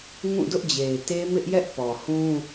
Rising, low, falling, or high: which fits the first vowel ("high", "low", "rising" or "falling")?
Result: falling